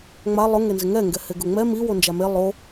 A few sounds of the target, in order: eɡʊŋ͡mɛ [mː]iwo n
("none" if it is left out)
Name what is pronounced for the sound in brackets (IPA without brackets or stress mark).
m